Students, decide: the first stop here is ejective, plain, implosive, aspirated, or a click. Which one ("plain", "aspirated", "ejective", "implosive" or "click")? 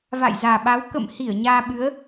implosive